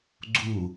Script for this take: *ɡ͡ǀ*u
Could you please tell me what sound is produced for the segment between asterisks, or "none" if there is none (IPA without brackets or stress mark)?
ɡ͡ǀ